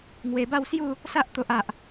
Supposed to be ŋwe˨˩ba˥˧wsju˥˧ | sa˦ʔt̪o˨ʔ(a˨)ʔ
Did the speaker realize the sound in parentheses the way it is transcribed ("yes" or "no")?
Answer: yes